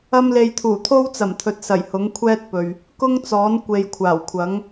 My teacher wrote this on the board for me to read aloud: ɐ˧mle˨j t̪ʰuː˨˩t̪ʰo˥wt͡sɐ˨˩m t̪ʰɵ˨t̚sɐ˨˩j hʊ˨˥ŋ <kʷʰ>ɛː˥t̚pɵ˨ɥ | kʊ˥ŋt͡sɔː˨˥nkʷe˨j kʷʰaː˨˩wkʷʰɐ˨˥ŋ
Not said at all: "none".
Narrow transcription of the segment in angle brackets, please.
kʷʰ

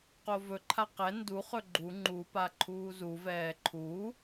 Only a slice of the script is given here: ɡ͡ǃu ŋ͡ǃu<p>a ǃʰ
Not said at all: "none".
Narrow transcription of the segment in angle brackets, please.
p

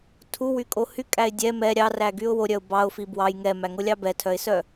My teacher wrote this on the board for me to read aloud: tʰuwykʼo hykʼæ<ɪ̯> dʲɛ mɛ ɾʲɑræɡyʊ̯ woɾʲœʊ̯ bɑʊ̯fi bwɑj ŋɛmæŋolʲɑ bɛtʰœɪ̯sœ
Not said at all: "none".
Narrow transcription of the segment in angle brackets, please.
ɪ̯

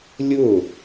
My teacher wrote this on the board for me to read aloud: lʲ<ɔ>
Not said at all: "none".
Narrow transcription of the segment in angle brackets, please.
ʊ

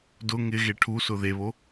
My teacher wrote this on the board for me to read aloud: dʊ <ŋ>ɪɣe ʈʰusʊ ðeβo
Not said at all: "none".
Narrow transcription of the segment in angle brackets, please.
ŋ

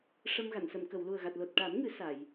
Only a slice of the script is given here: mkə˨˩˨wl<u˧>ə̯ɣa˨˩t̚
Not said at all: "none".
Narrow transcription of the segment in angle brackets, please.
u˨˩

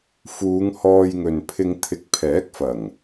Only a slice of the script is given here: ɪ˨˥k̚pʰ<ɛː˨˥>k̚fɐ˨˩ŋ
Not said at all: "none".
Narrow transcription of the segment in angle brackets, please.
ɛː˨˥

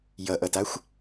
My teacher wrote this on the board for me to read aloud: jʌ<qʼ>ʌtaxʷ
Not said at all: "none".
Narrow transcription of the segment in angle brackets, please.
ʔ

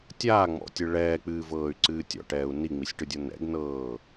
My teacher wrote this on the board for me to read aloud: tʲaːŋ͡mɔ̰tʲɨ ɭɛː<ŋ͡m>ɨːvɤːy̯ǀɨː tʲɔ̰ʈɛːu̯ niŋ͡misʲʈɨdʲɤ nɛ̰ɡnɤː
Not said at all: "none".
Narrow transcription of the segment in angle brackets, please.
k͡p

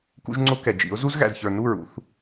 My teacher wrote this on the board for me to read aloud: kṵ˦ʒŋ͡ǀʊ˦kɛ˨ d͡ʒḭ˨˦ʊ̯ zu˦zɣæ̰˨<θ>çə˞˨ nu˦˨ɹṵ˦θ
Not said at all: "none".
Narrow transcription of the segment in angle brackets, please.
z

